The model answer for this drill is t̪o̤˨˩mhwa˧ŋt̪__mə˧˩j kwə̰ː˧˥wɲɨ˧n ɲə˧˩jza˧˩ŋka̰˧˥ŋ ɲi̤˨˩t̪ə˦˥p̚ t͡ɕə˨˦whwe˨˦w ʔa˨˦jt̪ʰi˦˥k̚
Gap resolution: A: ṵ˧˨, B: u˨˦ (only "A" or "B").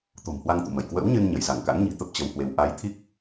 A